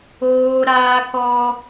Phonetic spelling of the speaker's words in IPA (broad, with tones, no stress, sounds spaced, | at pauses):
oː˦ ɾ aː˦ k ɔ˦